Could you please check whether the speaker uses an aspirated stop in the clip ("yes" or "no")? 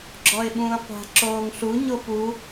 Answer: no